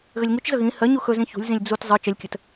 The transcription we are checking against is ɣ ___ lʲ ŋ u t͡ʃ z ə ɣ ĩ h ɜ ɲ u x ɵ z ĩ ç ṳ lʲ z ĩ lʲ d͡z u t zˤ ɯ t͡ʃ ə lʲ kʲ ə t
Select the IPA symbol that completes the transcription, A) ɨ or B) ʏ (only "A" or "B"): B